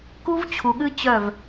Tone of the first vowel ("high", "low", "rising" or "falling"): high